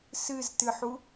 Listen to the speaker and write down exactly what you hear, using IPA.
s ɨ z t ɨ ħ u

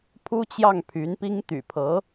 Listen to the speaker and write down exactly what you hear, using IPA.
pʰ u˥ t͡ɕ j ɑ˥˩ ŋ pʰ y˧˥ n p i˥ ŋ t̪ y̰˨˩ pʰ ɤ˧˥

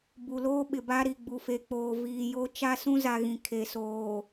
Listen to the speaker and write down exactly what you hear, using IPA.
b u˨ l oː˦ ɓ ɪ˨ b a˦ ɾ i˨ ɡ͡b u˨ f e˨ k͡p oː˨ v iː˨ j o˦ t͡ʃ a˦ s ũ˦ z a˨ ɣ ĩ˨ kʰ e˨ s oː˨

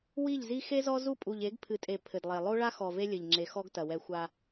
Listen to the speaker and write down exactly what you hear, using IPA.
w i˦˨ ʎ z i˦ x e˦ z ɔ˦ z u˦˨ pʼ u˨ ʎ e˨˦ ɡ pʰ ɨ˨ tʼ e˨ pʰ ɘ˨ d lˠ e˨ lˠ o˦ ɭ a˦ x ɔ˨ v e˦ lʲ ɘ˨ ʎ ŋ͡ǁ e˨ x ɔ˦ ɡ t ɐ˨ w ɛ˦ xʷ a˦

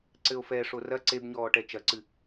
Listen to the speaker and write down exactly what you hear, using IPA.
ǀ ɘ o̯ f ɛ ʂ o r ɐ ǀ e b ɲ ɔː ʈ ɛ t͡ʃ ɐ ǀ ɨ

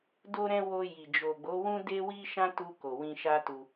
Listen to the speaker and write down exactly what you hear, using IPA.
d o˧ ɾ ɛ̃˧ w o˧ j i˨ d͡ʒ o˨ ɡ͡b o˨˦ w ũ˦ d e˦ w i˦ ʃ ã˦ t u˧ k o˨ w ĩ˧ ʃ a˦ t u˧

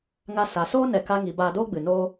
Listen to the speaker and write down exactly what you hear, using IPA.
ŋ a˧ s a˨ s oː˦ n ɛ˧ k a˦ ŋ i˧ b aː˧ d oː˦ ɡ͡b ɨ˨ n oː˦

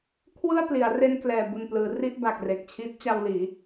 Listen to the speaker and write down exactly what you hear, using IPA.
kʰ w ɯ˥˩ a̯ p l i˩˦ a̯ r e˧ n k l ɛː˨˩ b u˨˩ n p l ɯː˩˦ r i˥˩ ʔ b a˨˩ k̚ r e˨˩ k̚ t͡ɕʰ i˦˥ t̚ t͡ɕ a˧ w l iː˩˦

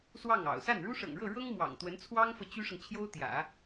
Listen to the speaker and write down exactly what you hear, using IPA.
s w ɑ˥˩ ŋ ɑ̰˨˩ ʊ̯ s a˥˩ n ɻ u˥ ʂ ɤ̰˨˩ ŋ ɻ ɤ˥˩ ɻ ɤ˥ ŋ m w ɑ̰˨˩ ŋ t̪ w ə˧˥ n t͡sʰ w ɑ˥ ŋ f ɤ˨ t͡ɕ y˥ ʂ ɤ˨ ŋ t͡ɕʰ j o˥ ʊ̯ t̪ j ä̰˨˩˦

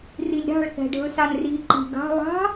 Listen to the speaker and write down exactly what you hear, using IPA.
r i lʲ ɾ ɑ̤ ɭ k æ̤ ɖʱ ɵ s ɑ n r i ǃ i̤ ɡ ɑ̤ lˠ ɑ̤

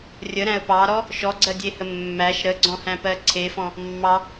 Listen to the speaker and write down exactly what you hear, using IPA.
rʲ ə ɾ æ̃ ə̯ p ɑ ɾ ɔ | ʃ ɔ ɡ͡ǀ ɜ dʲ e h ə mː æ ʃ ɾ ə ɡ͡ǀ ɔ̃ h æ̃ p ɜ ǀʰ e f ɔ̃ | mː ɑ

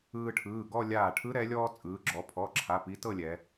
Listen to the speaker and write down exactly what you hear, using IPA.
ɯː˧ ʈʰ ɯː˩˧˩ ɡ ɔ˥˧ lʲ aː˧˩ ʈʰ ɯ˧˥ ɾ ɛ˩˧ lʲ ɔː˧ t͡sʼ ɯː˩˧ ɡ͡ǁ ɔ˩˧ pʰ ɔ˩˧˩ ǁʰ a˩˧˩ p i˧˥ t ɤ˥˧ lʲ ɛ˩˧

